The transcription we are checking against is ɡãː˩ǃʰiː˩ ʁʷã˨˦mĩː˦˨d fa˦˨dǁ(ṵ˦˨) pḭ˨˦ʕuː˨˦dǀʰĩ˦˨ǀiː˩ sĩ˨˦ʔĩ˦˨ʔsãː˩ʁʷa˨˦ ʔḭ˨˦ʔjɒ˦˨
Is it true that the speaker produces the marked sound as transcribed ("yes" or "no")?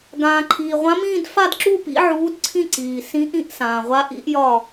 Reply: no